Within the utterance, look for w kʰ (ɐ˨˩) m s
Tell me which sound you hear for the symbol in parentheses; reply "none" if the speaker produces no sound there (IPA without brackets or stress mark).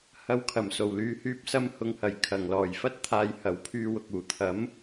ɐ˨˩